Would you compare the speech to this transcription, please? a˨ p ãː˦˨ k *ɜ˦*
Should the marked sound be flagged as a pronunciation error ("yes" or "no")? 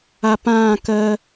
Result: no